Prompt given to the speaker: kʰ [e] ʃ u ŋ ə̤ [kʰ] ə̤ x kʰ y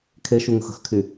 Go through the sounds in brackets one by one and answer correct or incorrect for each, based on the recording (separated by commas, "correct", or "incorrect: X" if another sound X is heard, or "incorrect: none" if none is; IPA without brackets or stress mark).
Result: correct, incorrect: x